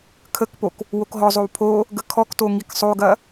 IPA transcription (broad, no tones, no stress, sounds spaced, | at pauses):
kʰ ə k p o k | w o k ɦ ɔ zˤ o w pʰ o | ɡ ə kʰ ɔ k t o ŋ i k sˤ o ɡ ɐ